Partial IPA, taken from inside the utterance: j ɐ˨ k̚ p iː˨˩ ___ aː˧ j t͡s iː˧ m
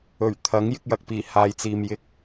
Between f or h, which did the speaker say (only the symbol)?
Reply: h